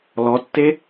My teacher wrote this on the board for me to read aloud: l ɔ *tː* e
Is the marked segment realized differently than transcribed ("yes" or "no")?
no